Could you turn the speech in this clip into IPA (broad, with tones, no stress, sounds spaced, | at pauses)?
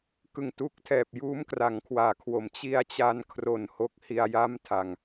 k ɯ˨˩ ŋ t u˦˥ k̚ tʰ ɛː˨˩ p̚ j uː˦˥ m k r a˩˦ ŋ kʰ w aː˩˦ kʰ w o˩˦ m t͡ɕ i˧ a̯ t͡ɕ a˧ n kʰ r o˨˩ n h o˦˥ k̚ h i˧ a̯ j a˥˩ m tʰ a˨˩ ŋ